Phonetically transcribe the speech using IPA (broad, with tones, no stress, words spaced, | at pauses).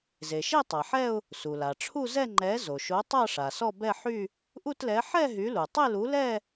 ze˩ʃe˥˧ tˤa˩ħɛ˥˧ʊ̯ | su˩la˩ ʈ͡ʂʰu˥˧zɛ˥˧ ŋ͡ǃɛ˨˥ zo˩ʃo˨˥tˤa˥˧ ʂa˩sɔ˥˧ bɛ˥˧ħy˥˧ | ʔu˥˧tlɛ˨˥ ħɛ˥˧ ɦy˨˥lu˩ tˤe˥˧lu˨˥lɛ˥˧